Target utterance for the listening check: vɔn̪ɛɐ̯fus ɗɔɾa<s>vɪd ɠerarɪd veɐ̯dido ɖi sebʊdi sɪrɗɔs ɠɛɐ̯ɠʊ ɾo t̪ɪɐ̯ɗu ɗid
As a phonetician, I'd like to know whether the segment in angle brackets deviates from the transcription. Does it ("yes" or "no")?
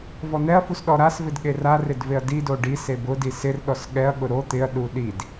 no